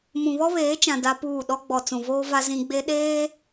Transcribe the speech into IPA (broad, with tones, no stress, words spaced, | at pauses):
mũ˨βɔ˦βeː˨˦t͡ʃã˨ da˦puː˦˨ ɗɔ˦ɡ͡bɔ˨ t͡sũ˨voː˦va˦ zĩ˦ɡ͡be˦ ɗeː˦